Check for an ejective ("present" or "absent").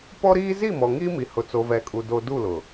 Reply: present